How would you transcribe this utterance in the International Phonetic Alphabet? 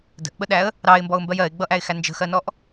d ə̤ ʔ ɓ ə ɗ æ ə̯ | ɾ ɑ ɪ̯ m b ɔ ʊ̯ m b ɜ j ɜ ɪ̯ ɡ͡b ʌ ʔ æ ɪ̯ x æ n d͡ʒ ə̤ x ɜ n ɔ ʔ

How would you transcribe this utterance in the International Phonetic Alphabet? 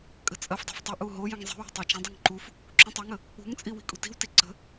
kʼ ə̤ t͡sʼ ɐ f dˤ o̤ f tˤ ə ʔ u ɦ o j ə̃ ŋ zˤ i̤ w ṳ tˤ ɐ t͡ʃ ə̃ dˤ u ŋ ǃ u f | ǁ ũ tˤ ə ŋ ə | ṳ ŋ t͡sʼ i w i̤ kʼ ṳ t i̤ w t i ǀ ə̤

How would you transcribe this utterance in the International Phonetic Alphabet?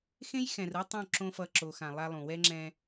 x ẽ˦ j x ɛ̃˨ r ɯ˦ tˤ õ˦˨ ǁ õ˦ f ʌ˦˨ ǁ o˨ x ã˨ lˠ a˦ lˠ ũ˨ w ɛ˦ ŋ͡ǁ ɛ̃˦

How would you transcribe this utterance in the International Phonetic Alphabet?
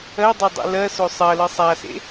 ɜ dˤ e dˤ ḭ l ɜ s o sˤ ɜ l ɯ sˤ a s ḛ

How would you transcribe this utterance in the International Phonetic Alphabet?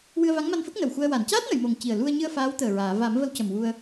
w ɨ˧ ə̯ v a˧˥ ŋ m a˧ n f ə˦˥ k̚ n ə˨˩ w x u˧ ə̯ w a˨˩˨ n c aː˦˥ t̚ n ə˨˩˨ j m o˨˩ ŋ c i˨˩ ə̯ l u˧ ə̯ ɲ ɨ˧ ə̯ f aː˧˥ w t̪ əː˨˩ ɹ aː˨˩˨ v a˨˩˦ m v ə˧ w c ə˨˩ m w u˧ ə̯

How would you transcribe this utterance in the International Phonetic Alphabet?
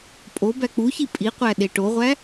pʼ o b æ k͡p u ç i pʼ i qʷ æ ɗ e ʈ o ʁʷ æ

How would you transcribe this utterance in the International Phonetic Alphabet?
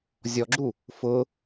zʲ ɔ ɡ͡ǁ u | f ʊ

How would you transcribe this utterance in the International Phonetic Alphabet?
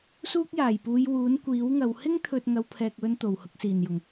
s uː˥ k̚ j aː˨˩ j p uː˨˧ j w uː˨˥ n kʷ iː˨˥ w ŋ ɐ˨˧ w h ɪ˥ ŋ t̪ʰ ɵ˨ t̚ ŋ ɐ˨˧ w pʰ ɛː˨ k̚ w ɵ˧ n t̪ o˨˩ w h ʊ˧ k̚ s iː˨˩ n j ʊ˨˩ ŋ

